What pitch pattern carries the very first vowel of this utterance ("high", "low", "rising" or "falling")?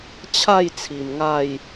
falling